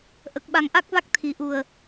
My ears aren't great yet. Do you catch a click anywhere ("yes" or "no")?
no